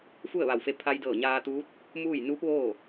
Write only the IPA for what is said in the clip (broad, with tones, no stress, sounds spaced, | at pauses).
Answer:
f u˥˨ ə̯ ʋ a˧˩ w f e˧ pʰ a˧ j d ɤː˧˩ ɲ aː˧ t̪ uː˧˥ t̚ | m uː˥˨ j n uː˧˥ p̚ ʋ oː˥˨